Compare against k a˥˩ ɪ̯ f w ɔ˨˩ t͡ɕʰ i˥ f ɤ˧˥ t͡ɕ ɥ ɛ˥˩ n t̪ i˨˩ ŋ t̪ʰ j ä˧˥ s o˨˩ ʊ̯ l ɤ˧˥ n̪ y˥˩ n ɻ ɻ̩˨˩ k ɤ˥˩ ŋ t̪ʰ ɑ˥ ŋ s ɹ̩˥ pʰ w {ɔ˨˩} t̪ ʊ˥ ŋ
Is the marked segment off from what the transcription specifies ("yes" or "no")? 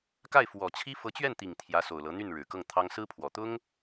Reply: no